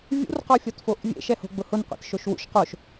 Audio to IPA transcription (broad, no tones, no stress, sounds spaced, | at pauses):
vʲ ṵ r q ɔ fʲ ɔ t f o ʔ vʲ ḛ ʃ ɛ h o̤ ɡ͡b ʊ h ʊ n qʷ ɛ̰ t ʃ o ʃ w ṵ ʃ q o ʃ